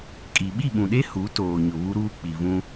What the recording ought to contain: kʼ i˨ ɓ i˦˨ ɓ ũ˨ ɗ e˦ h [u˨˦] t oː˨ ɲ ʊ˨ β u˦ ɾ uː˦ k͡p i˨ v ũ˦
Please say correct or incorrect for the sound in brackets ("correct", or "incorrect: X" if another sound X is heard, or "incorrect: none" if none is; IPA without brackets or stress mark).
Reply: correct